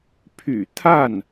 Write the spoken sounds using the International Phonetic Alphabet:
pʰ y̰˨˩ t̪ʰ a˥˩ n

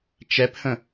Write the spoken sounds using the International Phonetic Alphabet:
t͡ʃ ɛ p h ə̃

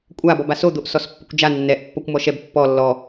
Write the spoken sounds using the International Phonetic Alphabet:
kʷʼ a b ɔ b a s o d̪ o ʔ s ɔ s pː ʊ kʷ d͡ʒ a nː ɛ ʔ pː ɔ kʷ m ɔ ʃ ɛ b pː ɔ lː ɔ

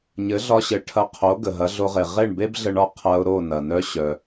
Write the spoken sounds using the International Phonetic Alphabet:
ɲ ɘ˩˥ ɮ ɒ˧ ɕ ɘ˩˥ ʈʰ ɐ˧ qʰ o˩˥ ɡ ə˩ ɦ ɐ˩˥ ɮ o˧ ʁ e˩ ʁ e˥˩ ɳ b e˥ b ɮ ə˧ ɳ ɒ˥˩ qʰ ɐ˧ ʊ̯ ɾ o˥˩ n ɐ˩ n œ˧ ɕ œ˩

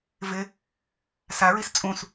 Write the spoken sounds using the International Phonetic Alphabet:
v ɪ | s a ɹ i s t͡sʼ ũ s

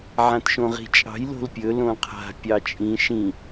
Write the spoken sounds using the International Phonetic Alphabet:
ʕ ã t ʃ õ ʁ i̤ t͡ʃʼ ɑ̤ j l o̤ l pʲ ɵ l õ qʰ a̤ pʲ ɑ t͡ʃʼ ĩ ʃ ĩ

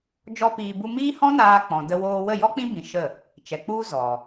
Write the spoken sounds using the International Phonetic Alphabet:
d͡ʒ ɔ˦ p iː˧ b u˧ m iː˦ h ɔ̃˦ n aː˧ k͡p ɔ̃˨ d ə˧ w oː˧ w ə˦˨ j ɔ˦ k͡p ĩ˦ b ĩ˧ ʃ ə˦˨ | t͡ʃ ɛ˨ k͡p u˦ z ɔ˨

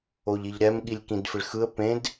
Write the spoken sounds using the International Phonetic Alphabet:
o ʎ i ʎ ɾ ɛ m ɠ i lʲ k ĩ d f ɪ ɭ x ɯ ə̯ p ẽ d

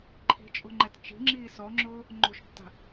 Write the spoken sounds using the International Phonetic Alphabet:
ǃʰ i̤ t͡ʃʼ o̤ ŋ͡ǃ ɛ t t͡ʃ i̤ ŋ͡ǁ iː s ɔ ŋ͡ǁ ʊː | ŋ͡ǃ o̤ ʃ tː a̤

